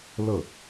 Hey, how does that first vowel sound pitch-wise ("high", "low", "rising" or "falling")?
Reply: falling